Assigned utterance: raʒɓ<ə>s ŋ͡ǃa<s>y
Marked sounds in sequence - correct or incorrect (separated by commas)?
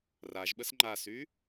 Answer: correct, correct